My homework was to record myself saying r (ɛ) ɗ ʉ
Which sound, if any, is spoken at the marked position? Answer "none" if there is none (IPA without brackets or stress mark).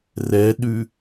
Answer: ɛ